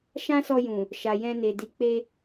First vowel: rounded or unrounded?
unrounded